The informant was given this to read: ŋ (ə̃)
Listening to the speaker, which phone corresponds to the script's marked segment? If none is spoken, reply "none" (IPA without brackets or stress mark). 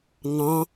ɑ̃